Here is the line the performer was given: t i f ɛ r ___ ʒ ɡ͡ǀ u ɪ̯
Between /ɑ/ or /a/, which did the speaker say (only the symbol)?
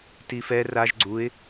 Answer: a